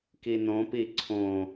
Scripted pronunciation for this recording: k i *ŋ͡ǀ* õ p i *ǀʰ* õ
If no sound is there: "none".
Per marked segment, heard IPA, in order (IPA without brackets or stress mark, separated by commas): n, ǀʰ